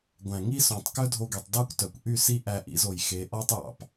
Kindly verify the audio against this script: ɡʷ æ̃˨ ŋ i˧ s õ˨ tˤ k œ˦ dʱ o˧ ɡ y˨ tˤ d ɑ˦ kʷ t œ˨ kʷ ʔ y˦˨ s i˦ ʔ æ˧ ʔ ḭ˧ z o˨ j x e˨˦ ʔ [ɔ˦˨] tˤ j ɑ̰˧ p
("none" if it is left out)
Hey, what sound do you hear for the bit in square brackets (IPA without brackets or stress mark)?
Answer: ɔ˦